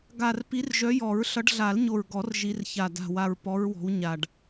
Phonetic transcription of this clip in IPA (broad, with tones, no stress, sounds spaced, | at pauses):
ɡ a˨˩ r p i˨˦ r ʒ œ˨˦ j ɔ˨˩˦ ɹ ɬ ʌ˨˦ ɖ ɮ a˨˩˦ l ɲ o˨˩ ɹ ɡ ɔ˨˩˦ r ʒ i˨˦ r ç a˨˩ d a̤˨˩ w a˨˩ ɹ p ɔ˨˦ ɹ w ɔ̤˨˦ w ɲ a˨˩ ɖ